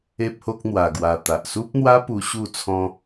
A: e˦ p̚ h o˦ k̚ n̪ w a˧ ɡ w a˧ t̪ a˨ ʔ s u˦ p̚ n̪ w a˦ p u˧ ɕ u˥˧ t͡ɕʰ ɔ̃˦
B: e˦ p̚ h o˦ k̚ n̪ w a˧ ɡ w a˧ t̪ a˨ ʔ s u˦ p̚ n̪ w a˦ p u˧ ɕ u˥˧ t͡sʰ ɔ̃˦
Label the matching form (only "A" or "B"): B